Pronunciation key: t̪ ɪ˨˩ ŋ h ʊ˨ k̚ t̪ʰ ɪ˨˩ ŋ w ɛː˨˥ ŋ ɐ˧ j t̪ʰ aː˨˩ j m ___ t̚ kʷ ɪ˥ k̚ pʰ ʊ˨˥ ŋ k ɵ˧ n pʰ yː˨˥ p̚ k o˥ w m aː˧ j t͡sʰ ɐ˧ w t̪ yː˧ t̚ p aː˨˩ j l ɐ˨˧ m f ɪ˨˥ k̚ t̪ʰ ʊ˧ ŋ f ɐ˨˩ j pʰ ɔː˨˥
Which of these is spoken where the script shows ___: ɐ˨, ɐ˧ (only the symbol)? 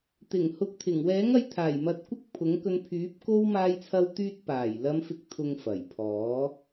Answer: ɐ˨